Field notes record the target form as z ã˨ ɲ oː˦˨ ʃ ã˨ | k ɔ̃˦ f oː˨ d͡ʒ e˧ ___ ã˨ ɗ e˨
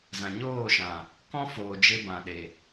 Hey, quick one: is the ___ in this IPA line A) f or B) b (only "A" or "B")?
B